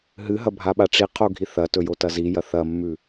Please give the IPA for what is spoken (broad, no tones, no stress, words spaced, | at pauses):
ɦɨɦɐ bʱaɓaʈ͡ʂiqʰo ɡʱiθɐtɵ jotɐzijɐ θɐmːʉ